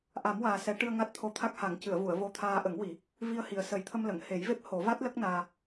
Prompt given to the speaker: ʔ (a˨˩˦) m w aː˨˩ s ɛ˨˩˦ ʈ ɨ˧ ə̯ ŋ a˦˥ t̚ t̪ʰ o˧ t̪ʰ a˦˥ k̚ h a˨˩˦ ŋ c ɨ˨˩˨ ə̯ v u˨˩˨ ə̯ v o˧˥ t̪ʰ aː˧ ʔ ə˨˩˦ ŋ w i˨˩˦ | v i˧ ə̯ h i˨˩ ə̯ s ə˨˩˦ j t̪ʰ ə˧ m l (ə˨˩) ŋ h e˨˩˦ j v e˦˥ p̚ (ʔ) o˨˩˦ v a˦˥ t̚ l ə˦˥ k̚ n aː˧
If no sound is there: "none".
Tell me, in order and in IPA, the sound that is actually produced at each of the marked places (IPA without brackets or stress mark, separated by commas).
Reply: a˨˩˦, ə˨˩˨, h